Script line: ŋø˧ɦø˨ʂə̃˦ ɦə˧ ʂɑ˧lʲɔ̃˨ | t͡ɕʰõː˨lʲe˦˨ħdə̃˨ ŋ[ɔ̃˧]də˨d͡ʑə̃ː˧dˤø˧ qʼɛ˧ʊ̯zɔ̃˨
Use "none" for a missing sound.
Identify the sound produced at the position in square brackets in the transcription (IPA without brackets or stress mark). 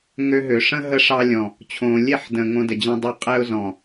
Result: õ˧